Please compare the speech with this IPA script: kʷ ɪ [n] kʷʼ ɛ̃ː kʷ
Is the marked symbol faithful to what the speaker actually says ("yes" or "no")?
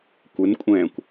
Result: yes